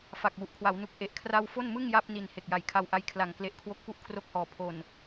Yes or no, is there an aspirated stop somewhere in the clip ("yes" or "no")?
yes